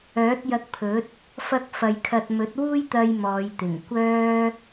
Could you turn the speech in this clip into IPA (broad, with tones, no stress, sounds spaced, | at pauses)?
œː˨˥ t̚ j ɐ˧ k̚ pʰ ɵ˨˥ t̚ | f ɐ˥ k̚ f ɐ˧ j kʰ ɐ˧ t̚ m ɵ˨˥ t̚ w uː˥ j t̪ ɐ˧ j m ɔː˨˧ j t̪ ɪ˨˩ ŋ kʷ œː˥